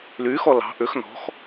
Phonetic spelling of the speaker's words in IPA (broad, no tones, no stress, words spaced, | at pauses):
lyxɔ lɑ̤ ʔʏx nɔ̤x